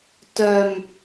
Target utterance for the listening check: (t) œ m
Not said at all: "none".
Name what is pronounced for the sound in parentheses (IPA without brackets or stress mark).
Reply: t